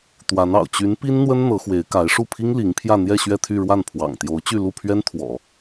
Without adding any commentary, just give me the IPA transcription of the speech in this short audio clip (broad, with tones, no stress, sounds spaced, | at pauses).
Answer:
t̪ w a˧˥ n ɑ̰˨˩ ʊ̯ t͡ɕ y˧˥ n p i˥ n n̪ w ə˥ n n̪ ɤ˧˥ x w e˧˥ ɪ̯ k a˧˥ ɪ̯ ʂ u˥˩ pʰ i˥ ŋ l i˧˥ ŋ pʰ j ä˥˧ n̪ j ɛ˥˧ ɕ ɥ ɛ˥˧ t̪ʰ y˥˧ ɻ w a˥˩ n pʰ w ɑ̰˨˩ ŋ t̪ j o˧˥ ʊ̯ t͡ɕ y˥˧ l u˥˩ pʰ ɥ ɛ˥ n t̪ʰ w ɔ̰˨˩˦